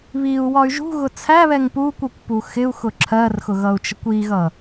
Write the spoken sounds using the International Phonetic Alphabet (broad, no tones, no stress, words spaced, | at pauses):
βiu̯ wɒy̯ʒṳɣʊ t͡sʰæβɛŋ pu kʷʌkʷpu xɪu̯ xʊǁʰɜrxʊ ɣʌu̯t͡ʃəkʷiɣʌ